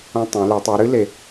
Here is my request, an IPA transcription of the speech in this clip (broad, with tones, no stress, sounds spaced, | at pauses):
õ˧ tˤ ẽ˩˧ l ɨ˩˧ tˤ ɨ˩˧ ɾ ɨ˥ l e˩